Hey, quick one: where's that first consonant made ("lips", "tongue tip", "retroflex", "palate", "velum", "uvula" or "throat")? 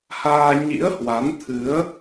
throat